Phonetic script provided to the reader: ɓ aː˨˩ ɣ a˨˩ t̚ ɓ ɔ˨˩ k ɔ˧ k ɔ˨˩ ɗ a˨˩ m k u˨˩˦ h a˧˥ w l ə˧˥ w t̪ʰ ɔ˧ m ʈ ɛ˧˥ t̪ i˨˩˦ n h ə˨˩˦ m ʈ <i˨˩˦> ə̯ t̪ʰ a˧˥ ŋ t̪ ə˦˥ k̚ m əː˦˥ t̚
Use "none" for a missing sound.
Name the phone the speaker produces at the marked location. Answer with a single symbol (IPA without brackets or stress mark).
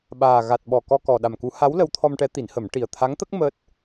i˨˩